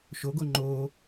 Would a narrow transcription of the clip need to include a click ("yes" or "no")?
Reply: yes